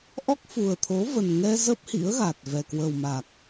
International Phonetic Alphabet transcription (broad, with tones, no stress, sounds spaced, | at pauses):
ʔ ɔ˦˥ k̚ f u˨˩ ə̯ t̪ʰ o˨˦ v ə˨˩ n ŋ ɛ˧ z ə˦˥ p̚ h ḭ˧˥ ə̯ ɣ a˨˩ t̚ v ɛ˨˩ k w ə˨˩ w m a˨˩ k̚